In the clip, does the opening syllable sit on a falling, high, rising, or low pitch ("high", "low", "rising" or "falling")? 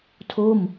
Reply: falling